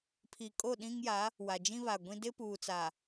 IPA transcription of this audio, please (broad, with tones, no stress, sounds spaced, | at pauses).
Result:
pʰ i˨ kʼ o˦˨ ɗ ĩ˦ ŋ j a˨˦ | w a˨ d͡ʒ ĩ˦ β a˨ ɡʷ ĩ˦ d ɪ˦ p uː˨ t͡s a˨